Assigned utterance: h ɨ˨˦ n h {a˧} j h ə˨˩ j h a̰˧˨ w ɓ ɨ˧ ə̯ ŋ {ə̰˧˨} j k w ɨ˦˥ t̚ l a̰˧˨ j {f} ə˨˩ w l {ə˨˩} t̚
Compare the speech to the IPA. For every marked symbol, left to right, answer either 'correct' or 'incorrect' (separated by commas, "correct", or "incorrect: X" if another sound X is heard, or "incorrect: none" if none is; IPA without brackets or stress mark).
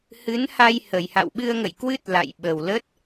correct, correct, incorrect: ɓ, incorrect: ə˦˥